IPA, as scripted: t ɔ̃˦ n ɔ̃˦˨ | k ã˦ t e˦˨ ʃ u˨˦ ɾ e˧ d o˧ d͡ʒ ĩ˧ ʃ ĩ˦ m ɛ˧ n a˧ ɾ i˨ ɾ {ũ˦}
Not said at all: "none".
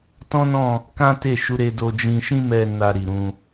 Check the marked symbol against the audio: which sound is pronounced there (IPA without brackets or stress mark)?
ũ˧